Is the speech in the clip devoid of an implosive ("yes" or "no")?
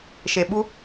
no